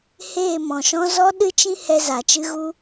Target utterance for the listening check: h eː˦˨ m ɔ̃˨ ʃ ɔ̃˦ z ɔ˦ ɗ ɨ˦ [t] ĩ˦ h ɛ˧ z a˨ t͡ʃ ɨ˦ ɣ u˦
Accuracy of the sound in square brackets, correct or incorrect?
incorrect